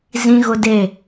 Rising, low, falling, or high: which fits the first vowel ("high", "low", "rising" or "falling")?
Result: high